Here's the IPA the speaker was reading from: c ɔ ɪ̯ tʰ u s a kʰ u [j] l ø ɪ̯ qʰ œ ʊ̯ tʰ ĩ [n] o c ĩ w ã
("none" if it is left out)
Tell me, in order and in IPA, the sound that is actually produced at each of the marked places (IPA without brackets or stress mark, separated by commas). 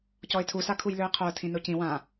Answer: j, n